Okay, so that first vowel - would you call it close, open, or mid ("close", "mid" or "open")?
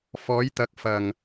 mid